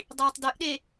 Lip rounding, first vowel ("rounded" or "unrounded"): unrounded